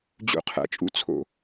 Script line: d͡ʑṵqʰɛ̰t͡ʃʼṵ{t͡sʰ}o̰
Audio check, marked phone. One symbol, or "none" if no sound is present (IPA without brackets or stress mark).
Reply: t͡sʰ